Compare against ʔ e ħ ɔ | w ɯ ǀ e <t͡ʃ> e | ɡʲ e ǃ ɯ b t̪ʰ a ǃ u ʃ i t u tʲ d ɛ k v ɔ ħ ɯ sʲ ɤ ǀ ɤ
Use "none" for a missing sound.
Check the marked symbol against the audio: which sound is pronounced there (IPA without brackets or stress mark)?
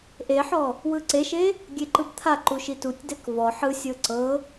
ʃ